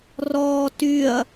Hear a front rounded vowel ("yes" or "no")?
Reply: yes